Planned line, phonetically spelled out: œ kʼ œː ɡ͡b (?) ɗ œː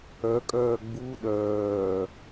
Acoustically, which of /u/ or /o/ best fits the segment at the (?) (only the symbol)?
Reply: u